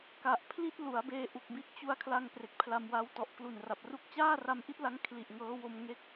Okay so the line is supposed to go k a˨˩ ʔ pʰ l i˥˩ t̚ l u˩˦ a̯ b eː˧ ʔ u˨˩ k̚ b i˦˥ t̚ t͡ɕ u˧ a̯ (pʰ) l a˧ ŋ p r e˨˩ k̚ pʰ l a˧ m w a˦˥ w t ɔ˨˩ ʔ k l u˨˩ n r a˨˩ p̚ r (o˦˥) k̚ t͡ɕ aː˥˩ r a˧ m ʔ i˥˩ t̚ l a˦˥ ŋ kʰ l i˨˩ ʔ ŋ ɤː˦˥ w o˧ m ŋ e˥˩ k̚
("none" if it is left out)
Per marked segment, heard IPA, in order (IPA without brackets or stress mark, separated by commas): kʰ, u˦˥